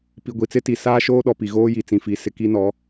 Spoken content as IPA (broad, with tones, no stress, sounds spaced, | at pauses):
p i˨ ɡʷ i˨ t͡s ɪ˦ t i˨ s aː˦ ʃ oː˦ ɗ ɔ˨ p i˨ ɣ oː˦ j i˨ t͡s ĩ˨ f i˨˦ s ɪ˨ k i˦ n ɔ˨˦